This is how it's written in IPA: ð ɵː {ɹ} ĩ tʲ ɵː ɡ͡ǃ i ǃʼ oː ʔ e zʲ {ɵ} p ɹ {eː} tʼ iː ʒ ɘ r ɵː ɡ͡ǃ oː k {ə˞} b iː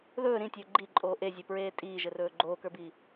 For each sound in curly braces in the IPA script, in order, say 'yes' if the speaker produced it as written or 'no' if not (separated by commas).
no, yes, yes, yes